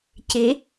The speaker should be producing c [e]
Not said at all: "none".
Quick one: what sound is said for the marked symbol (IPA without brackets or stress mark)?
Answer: e